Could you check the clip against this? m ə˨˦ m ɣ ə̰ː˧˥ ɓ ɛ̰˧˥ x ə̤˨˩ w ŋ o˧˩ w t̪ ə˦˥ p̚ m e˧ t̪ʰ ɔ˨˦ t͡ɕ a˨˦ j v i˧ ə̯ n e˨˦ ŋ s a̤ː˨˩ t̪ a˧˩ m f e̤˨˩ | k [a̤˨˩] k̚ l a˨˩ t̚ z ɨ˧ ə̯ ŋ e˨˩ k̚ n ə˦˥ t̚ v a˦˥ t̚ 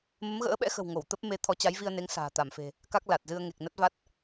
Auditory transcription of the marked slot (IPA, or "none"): a˦˥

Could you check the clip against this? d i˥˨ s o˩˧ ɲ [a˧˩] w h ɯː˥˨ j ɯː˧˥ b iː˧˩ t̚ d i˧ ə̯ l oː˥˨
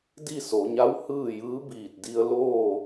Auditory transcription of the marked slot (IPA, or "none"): a˧˥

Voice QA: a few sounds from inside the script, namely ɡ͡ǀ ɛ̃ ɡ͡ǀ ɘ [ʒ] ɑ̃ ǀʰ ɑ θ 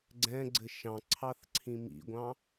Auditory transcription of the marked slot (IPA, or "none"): ʃ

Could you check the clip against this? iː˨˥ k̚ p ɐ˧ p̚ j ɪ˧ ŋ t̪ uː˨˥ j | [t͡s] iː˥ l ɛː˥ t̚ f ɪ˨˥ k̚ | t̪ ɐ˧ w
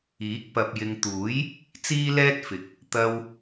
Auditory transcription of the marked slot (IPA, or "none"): t͡s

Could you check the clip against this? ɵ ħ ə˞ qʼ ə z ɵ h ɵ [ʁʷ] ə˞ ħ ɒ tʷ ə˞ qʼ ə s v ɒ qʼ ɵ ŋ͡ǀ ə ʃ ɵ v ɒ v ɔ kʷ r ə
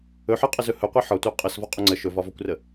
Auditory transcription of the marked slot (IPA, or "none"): qʷ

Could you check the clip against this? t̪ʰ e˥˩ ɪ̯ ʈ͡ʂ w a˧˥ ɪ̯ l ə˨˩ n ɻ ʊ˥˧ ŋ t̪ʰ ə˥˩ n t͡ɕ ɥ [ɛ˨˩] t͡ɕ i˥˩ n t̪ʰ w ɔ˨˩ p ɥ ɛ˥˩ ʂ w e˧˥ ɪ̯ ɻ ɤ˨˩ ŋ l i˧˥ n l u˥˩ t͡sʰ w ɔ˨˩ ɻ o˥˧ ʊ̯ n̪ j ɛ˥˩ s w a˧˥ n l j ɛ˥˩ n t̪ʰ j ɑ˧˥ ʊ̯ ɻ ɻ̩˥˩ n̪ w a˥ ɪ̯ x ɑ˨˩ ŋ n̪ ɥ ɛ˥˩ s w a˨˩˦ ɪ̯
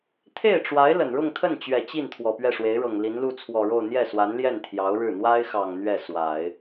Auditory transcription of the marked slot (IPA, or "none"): ɛ˨˩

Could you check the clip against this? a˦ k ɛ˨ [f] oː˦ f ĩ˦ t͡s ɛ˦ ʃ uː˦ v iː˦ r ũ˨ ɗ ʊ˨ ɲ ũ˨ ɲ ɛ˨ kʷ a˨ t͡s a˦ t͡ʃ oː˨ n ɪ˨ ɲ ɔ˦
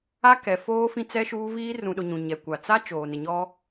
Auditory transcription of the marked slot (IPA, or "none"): f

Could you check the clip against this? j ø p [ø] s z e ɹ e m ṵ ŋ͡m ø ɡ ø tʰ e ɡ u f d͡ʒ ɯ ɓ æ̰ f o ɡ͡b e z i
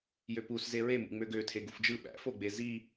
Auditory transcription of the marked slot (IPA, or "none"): u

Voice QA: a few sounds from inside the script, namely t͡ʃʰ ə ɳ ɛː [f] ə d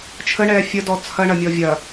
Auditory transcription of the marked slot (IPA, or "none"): fʲ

